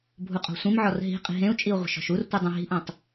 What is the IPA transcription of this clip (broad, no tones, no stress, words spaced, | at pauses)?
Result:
bʱuqʼɔ̤sʷĩmʕɔr ɦi̤ qʼi̤ɦẽu̯t͡ʃʼiu̯ ʁʷə̤ʃɔ̤ʃurtʷɯ dˤũɦi̤ʔũtˤ